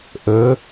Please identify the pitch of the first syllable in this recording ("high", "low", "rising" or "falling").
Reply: rising